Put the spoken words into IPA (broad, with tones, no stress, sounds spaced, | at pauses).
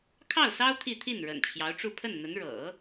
kʰ ɑ˥˩ ʊ̯ s ɑ˥ ʊ̯ t̪ʰ i˥˧ t̪ʰ i˥˩ n ɻ ə̰˨˩ n t͡ɕʰ j ɑ˧˥ ʊ̯ ʈ͡ʂ u˥˧ pʰ ə˥˩ n n̪ ə˧˥ n ɻ ɤ̰˨˩˦